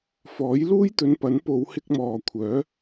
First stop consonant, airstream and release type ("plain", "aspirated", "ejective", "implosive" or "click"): plain